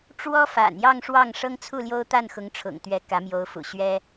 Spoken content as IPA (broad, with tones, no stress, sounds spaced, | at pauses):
ʈ͡ʂ w ɔ˥ f a̰˨˩ n j ɑ˥˧ ŋ ʂ w ɑ˥˩ ŋ ʂ ɤ˥ ŋ t͡sʰ u˥˩ l j o˥ ʊ̯ t̪ a˥˩ n x ʊ˧˥ ŋ ʈ͡ʂʰ ʊ̰˨˩ ŋ t̪ ɥ ɛ˧˥ k ä˧˥ m j o˧˥ ʊ̯ f ṵ˨˩ ɕ ɥ ɛ˥